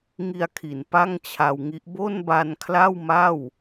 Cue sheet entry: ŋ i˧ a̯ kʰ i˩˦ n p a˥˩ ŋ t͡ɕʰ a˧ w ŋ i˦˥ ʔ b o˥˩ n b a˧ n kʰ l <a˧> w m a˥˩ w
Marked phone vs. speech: incorrect: a˥˩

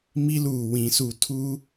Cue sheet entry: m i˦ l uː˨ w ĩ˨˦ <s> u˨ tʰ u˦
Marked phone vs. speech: correct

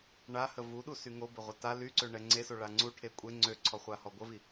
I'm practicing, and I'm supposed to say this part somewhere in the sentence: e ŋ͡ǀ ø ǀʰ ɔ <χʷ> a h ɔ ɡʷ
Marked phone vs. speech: correct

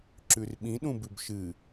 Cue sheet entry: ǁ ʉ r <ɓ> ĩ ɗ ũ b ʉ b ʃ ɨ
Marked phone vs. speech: correct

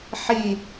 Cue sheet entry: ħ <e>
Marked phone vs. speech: incorrect: i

